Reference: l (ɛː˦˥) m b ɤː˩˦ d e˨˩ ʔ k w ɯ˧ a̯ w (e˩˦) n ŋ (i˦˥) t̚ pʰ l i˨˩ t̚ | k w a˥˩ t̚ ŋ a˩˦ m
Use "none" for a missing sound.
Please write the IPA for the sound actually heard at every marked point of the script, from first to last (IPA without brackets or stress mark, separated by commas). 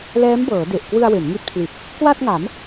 ɛː˦˥, e˩˦, i˦˥